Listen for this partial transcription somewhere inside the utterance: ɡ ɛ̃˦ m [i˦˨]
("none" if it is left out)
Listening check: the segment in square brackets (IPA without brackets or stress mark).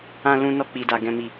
i˦˨